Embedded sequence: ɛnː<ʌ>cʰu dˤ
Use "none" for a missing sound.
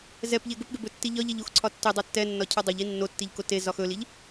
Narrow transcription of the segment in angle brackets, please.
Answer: ɒ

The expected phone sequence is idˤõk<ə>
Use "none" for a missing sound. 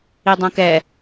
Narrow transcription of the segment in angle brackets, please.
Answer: ɛ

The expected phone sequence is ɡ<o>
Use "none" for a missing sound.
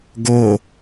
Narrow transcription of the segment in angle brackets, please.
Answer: o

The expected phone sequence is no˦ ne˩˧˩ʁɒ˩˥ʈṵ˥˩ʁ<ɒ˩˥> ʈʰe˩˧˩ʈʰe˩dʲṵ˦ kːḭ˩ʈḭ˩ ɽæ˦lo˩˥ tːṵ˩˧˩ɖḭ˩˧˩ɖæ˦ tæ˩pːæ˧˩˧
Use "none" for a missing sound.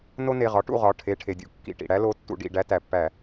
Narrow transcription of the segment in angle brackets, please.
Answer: ɒ˩˧˩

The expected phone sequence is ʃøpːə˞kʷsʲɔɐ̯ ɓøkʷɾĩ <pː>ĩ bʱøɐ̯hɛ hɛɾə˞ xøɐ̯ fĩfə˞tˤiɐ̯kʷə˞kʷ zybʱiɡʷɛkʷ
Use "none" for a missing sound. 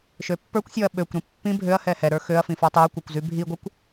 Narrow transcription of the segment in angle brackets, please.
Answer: pː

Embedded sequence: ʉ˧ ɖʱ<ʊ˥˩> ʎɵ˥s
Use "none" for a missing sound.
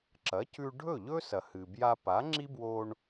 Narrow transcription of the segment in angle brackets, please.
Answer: ɵ˥˩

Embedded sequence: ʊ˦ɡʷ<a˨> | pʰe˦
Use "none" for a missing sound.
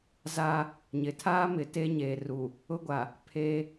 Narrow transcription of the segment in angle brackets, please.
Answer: a˨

